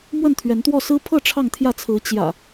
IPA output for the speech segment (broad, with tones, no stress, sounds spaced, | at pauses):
m w ə˥˨ n t̪ʰ ɥ ɛ˨˦ n t̪ w ɔ˥˨ s ɹ̩˦ pʰ ɤ˥˨ ʈ͡ʂʰ ɑ˥˨ ŋ t̪ʰ j ä˥˨ t͡sʰ ɹ̩˨˦ t͡ɕ j ä̰˨˩